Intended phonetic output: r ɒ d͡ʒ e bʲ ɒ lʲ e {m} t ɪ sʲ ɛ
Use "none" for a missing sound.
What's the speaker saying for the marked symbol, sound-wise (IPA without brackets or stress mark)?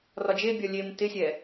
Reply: m